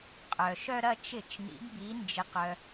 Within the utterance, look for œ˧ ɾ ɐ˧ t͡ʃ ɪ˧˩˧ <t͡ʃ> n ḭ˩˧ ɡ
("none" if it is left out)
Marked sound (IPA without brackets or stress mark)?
t͡ʃ